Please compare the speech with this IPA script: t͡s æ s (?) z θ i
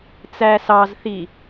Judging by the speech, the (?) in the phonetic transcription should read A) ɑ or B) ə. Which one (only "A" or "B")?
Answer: A